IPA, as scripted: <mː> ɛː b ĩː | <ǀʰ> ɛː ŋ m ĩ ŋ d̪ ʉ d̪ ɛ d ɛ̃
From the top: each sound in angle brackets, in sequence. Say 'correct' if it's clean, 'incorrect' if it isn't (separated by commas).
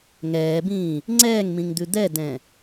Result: incorrect, incorrect